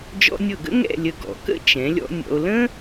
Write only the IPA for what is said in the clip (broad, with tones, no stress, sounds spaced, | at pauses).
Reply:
d͡ʒ ɔ̰˧ nʲ ɤ˧˩ ɡ ə̰˥ ŋ ɛ̰˥˧ lʲ ə˧ ɡ ɔ̰˩˧ k ə̰˥ t͡ʃ ɛ̃˩˧ lʲ ɔ̰˧ nʲ ɔ̰˧ o̯ l ə̃˥